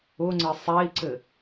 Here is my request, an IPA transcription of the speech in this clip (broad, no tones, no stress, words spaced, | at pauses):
ʊŋ͡ǀɘ sˤɛi̯ǀɘ